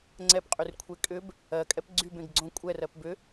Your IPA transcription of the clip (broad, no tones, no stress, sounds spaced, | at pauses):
ŋ͡ǀ ɛ p qʼ y r kʷʰ e kʼ ʏ b | ɜ kʼ ɛ p ɡ͡ǀ y b ẽ ɡ ɡ͡ǀ õ kʷʼ ɛ r ɜ p b ʏ